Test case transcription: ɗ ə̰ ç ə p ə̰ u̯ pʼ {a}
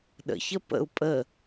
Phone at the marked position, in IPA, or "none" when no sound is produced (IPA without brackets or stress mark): ə